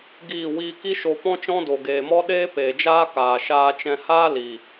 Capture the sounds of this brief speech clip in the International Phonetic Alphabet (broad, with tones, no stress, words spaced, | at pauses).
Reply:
ɡiː˦˨wiː˦ ki˦ʃo˧pɔ̃˦t͡ʃɔ̃˦ do˨ɡeː˨mɔ˦ ɗeː˦peː˨d͡ʒaː˦kaː˨ ʃaː˧t͡ʃɛ̃˧haː˦ li˨